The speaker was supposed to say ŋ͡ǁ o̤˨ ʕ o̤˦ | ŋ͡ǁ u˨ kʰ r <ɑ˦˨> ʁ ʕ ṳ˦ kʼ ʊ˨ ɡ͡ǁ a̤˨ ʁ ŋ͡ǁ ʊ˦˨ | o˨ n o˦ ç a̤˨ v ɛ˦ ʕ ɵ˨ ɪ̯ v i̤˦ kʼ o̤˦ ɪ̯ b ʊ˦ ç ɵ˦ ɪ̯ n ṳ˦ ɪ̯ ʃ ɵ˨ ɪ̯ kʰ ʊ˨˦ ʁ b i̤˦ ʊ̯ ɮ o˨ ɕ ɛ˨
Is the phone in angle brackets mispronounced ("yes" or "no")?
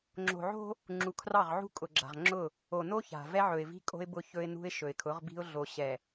no